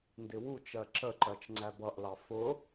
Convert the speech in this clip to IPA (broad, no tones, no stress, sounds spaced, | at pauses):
n d ɪ w u t͡ʃ ɜ ǁ ə ǃ ɜ t͡ʃ ŋ͡ǀ æ b ʌ ʔ l ɑ f ʊ